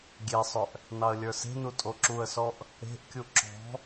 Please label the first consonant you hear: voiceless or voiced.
voiced